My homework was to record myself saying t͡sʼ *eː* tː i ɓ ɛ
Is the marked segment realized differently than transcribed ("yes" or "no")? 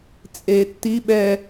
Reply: no